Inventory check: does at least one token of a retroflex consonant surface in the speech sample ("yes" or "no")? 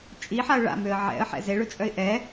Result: yes